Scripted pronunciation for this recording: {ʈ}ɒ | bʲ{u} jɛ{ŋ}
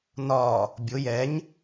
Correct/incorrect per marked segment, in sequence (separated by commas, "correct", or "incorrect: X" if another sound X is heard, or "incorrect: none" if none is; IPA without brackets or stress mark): incorrect: n, incorrect: ʊ, incorrect: ɲ